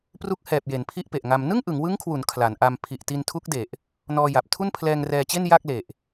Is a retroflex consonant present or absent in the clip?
absent